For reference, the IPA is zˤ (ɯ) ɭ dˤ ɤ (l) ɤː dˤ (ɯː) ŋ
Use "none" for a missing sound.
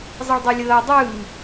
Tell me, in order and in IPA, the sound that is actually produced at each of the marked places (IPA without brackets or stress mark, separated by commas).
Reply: ɯ, lʲ, ɯː